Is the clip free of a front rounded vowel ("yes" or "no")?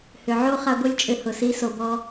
no